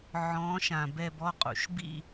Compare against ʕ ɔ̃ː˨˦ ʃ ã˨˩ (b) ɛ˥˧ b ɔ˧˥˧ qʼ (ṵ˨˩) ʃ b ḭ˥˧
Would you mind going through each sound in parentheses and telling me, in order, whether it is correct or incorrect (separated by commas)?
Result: correct, correct